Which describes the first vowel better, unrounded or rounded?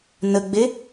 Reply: unrounded